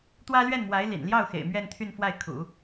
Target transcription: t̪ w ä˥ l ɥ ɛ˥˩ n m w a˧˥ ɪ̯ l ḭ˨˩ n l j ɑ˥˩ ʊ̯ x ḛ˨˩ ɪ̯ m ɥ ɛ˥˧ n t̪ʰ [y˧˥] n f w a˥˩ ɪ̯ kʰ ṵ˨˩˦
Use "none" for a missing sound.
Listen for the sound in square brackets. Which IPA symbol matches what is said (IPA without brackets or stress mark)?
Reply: y˥˧